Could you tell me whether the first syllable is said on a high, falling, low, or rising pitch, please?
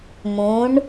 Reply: rising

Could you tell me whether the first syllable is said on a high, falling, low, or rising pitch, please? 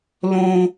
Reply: low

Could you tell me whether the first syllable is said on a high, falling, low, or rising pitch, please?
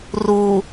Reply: low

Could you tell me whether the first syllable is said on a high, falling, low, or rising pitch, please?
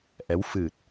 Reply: rising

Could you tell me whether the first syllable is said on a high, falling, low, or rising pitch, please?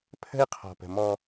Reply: high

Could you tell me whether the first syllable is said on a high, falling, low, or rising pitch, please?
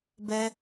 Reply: high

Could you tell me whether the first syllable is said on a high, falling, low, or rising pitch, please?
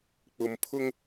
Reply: low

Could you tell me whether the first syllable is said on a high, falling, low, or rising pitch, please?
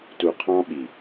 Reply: low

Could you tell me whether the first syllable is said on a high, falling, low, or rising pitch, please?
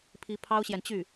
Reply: rising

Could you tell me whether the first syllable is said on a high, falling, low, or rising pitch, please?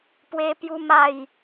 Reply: high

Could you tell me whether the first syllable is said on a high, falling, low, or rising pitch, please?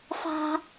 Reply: high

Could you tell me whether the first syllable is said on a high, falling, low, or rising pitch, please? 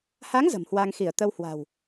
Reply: rising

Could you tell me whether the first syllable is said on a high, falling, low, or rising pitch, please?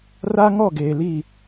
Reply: high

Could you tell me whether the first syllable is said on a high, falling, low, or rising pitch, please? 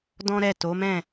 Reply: high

